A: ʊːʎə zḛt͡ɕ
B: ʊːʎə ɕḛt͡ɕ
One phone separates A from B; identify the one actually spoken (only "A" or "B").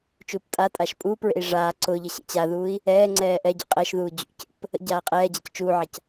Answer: B